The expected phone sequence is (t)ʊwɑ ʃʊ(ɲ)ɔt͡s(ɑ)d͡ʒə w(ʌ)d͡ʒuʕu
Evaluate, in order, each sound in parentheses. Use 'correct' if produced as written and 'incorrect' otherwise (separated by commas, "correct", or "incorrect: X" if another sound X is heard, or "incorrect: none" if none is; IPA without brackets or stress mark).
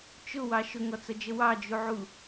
incorrect: t͡ʃ, incorrect: ŋ, incorrect: ʌ, incorrect: ɑ